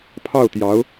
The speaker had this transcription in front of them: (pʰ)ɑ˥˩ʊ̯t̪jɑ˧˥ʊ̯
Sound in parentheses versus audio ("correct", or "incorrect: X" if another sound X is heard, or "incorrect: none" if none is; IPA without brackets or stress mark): correct